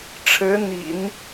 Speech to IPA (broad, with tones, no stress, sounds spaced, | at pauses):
ʈ͡ʂʰ ɻ̩˧˥ n̪ ḭ˨˩˦ n